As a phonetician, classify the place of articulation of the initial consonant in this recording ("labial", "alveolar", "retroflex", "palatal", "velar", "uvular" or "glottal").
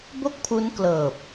labial